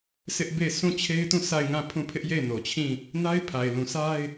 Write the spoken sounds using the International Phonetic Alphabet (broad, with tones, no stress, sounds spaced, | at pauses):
sʰ ɪ˦ ʔ b e˦˨ ɪ̯ sʰ ũ˦˨ t͡ɕʰ e˦ ɪ̯ t ũ˦˨ sʰ a˦˨ ɪ̯ ŋ ã˦˨ pʰ ũ˦˨ pʰ ɪ˦ ʔ j e˦˨ ɪ̯ n o˨ t͡ɕʰ ĩ˦˨ | n a˦ ɪ̯ pʰ a˨ ɪ̯ l ũ˨ sʰ a˦ ɪ̯